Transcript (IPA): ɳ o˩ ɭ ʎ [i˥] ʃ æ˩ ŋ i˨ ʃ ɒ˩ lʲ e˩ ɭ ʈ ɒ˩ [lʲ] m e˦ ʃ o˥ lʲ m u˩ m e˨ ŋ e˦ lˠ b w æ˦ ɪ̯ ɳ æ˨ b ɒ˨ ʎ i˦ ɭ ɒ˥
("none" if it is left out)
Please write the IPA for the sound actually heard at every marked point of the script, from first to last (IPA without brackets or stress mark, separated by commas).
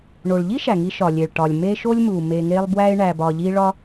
i˥, lʲ